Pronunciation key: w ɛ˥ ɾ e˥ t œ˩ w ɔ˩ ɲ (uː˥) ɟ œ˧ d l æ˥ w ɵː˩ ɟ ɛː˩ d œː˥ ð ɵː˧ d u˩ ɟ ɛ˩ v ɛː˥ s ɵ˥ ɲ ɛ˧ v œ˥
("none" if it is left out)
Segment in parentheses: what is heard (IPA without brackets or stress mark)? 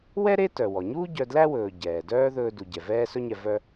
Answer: uː˥